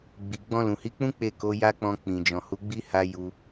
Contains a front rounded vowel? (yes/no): no